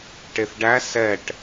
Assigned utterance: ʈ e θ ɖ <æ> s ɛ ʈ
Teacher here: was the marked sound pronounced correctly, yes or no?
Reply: yes